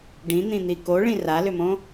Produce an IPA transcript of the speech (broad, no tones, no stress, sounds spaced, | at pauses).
ɖ ĩ n̪ ĩ n̪ i k o ɭ ĩ r a l ʏ m õ